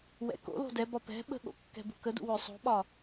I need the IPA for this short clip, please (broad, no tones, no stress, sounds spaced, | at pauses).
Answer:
w ɛ̰ k o̰ l o̤ d ɛ b ɒ p ɛ̤ ɓ ə̤ ɠ o̰ kː ɛ̤ b ṳ k ə d ṵ w ɵ sˤ o̤ ɓ ɒ